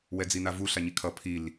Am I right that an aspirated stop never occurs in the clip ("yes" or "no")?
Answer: no